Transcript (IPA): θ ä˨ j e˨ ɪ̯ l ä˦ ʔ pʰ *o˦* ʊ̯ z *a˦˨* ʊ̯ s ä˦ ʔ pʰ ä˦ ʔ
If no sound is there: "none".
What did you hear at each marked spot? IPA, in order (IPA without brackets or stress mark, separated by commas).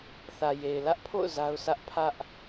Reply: o̰˦˨, a˦